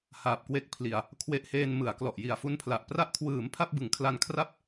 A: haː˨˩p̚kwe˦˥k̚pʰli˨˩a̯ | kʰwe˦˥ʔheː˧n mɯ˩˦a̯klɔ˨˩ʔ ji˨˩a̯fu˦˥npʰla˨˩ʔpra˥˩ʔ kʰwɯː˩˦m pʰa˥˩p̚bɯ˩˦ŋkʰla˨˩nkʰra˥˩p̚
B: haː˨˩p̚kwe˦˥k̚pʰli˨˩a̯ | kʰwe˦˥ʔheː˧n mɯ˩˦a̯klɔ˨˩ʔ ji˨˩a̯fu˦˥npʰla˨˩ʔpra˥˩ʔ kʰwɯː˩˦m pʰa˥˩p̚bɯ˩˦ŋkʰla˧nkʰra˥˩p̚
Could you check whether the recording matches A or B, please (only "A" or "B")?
B